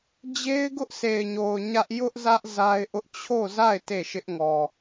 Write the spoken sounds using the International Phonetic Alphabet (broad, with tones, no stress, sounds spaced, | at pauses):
d͡ʑ e˦ ɪ̯ ɡ ʊ˦ ʔ s e˨ ɪ̯ ɲ o˨ ʊ̯ ɲ ä˦ ʔ j ʊ˦ ʔ z ä˦ ʔ z a˦ ɪ̯ ʔ ʊ˦ ʔ t͡ɕʰ o˦˨ z a˦˨ ɪ̯ t e˦˨ ʃ ɪ˦ ʔ ŋ ɔ˨